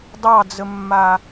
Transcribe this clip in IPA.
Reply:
dˤ ɑ d͡z ə mː a

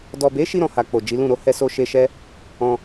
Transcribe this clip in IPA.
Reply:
d ɔ˨ b e˨˦ ʃ i˧ ɾ ɔ̃˨ h a˨ k͡p o˨ d͡ʒ i˨˦ l ũ˦˨ ɾ o˧ h ɛ˧ s o˧ ʃ e˧ ʃ ɛ˦ | ɔ̃˧

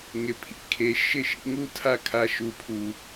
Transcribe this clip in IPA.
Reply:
ŋ ɪ˧ pʰ ḭ˦ kʰ e˧ ʃ ɪ˦ ʃ ḭ˦ ŋ u˦ tʰ a˦ kʰ a˧ ʃ u˨ pʰ u˨

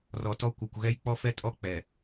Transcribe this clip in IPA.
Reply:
r ɔ˨ t ɔ˦ kʷ ʌ˨ kʷ ɣ ɛ˦ j k͡p ɔ˦ f ɛ˦ tʼ ɔ˦ k͡p ɛ˨

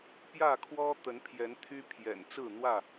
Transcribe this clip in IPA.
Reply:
p j ä˥˨ kʰ w ɔ˦ t̪ ə˨˦ n pʰ j ɛ˨˦ n t̪ʰ y˦ pʰ j ɛ̰˨˩ n t͡s ɹ̩˥˨ n̪ w ä˥˨

